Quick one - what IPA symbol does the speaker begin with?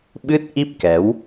ɓ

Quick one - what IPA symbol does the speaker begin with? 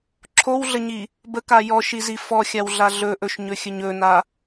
ǁʰ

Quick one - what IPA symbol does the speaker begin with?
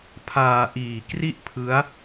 pʰ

